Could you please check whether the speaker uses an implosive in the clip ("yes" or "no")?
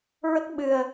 yes